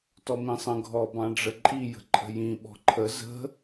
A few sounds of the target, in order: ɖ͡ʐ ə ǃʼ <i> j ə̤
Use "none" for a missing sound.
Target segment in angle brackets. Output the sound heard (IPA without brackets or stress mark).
i